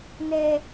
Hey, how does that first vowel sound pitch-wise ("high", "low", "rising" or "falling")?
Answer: low